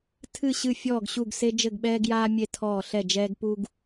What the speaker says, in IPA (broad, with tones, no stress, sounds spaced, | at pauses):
tʰ ɨ˦˨ ɕ ɨ˦˨ fʲ ɔː˦˨ ɡ ɕ u˦˨ ɡ s e˦ d͡ʒ ɘ˦˨ ɡ ɓ ɛː˦ ɡ j aː˦ mʲ e˦ tʰ ɔː˦˨ ɬ ɛ˦˨ d͡ʒ ɛː˦ ɡ p u˦ ɡ